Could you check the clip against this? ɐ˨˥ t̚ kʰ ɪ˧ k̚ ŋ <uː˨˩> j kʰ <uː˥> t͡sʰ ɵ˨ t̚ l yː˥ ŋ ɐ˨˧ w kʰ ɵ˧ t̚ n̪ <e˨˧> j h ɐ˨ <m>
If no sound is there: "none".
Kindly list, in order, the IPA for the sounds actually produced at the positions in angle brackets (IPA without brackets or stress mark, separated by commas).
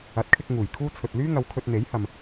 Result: uː˨˩, uː˥, e˨˥, m